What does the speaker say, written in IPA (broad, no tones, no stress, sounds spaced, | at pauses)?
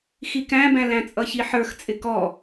x i k æ̃ b æ̃ l æ̃ t͡sʼ ʌ ç i ħ ə˞ x t͡sʼ ɪ k ɔ